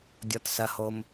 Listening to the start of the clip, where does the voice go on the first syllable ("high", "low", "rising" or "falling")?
low